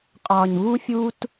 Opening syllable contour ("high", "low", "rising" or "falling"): low